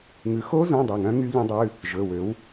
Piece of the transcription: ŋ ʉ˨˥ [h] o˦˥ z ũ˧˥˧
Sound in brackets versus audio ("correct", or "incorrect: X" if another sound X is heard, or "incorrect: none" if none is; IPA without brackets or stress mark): incorrect: x